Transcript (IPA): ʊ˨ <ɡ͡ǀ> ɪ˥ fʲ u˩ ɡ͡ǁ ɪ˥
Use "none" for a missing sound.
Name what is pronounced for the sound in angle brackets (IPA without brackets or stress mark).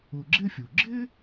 ɡ͡ǁ